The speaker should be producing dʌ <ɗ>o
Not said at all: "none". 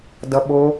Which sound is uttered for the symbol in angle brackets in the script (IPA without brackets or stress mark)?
ɓ